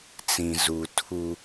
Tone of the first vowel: low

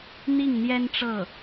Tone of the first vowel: falling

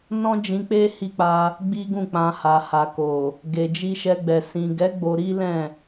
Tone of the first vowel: high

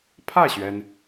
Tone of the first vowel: falling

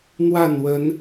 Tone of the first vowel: falling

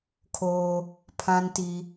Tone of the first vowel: high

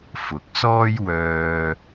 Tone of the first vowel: rising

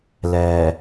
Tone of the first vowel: low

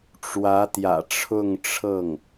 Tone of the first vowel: rising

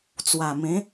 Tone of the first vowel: low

